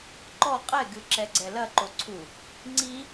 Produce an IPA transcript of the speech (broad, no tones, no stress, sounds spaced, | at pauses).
ǃ ɔ qʼ ɛ ɡ ɨ ǁ ɛ ɡ͡ǀ ɛ l ɐ ǃ o ǀʰ u | ŋ͡ǀ i